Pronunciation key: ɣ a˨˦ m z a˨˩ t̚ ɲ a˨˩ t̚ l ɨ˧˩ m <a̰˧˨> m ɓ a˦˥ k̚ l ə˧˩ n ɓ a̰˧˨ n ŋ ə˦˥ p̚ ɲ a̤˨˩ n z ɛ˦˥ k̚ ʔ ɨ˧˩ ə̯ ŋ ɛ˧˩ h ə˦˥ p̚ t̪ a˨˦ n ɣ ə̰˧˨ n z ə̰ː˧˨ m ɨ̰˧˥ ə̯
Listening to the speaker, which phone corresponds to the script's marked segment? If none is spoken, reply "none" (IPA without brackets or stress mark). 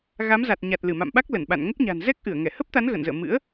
a̰˧˨